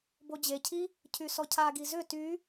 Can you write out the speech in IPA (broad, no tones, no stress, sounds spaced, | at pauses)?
b o d͡ʑ e cʰ i | cʰ y s ɔ cʰ a ɡ i z ʏ t y